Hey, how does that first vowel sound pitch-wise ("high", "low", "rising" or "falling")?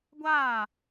falling